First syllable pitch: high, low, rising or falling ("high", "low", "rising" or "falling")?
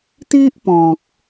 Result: high